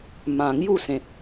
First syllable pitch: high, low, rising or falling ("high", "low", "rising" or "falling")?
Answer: low